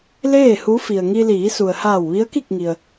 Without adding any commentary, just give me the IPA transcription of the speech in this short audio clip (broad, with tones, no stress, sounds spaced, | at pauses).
l eː˥˨ h u˧˥ f i˩ ə̯ ŋ i˧ l iː˩˧ s u˩ ə̯ h aː˧˩ w ʋ i˧˥ ə̯ k i˥˨ k̚ ŋ i˩ ə̯